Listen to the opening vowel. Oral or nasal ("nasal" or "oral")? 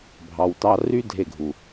oral